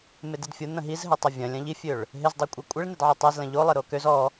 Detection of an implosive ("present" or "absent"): absent